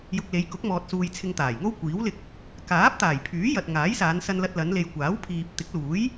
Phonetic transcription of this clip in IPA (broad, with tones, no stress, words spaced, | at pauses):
jʊ˧k̚le˨˧j kʊ˨˥k̚mɔː˨t̚suː˨j t͡sʰɪ˧ŋt̪aː˨˩jŋo˥w kʷiː˨˥wlɪ˧k̚ | kaː˨˥p̚t̪aː˨˩jpʰyː˨˥ jɐ˨t̚ŋaː˨˥j saː˨˧nsɐ˧nlɐ˧t̚ lɐ˨˧nle˨jkʷaː˨˥w pʰiː˧p̚ t̪ɪ˨˥k̚luː˨˥j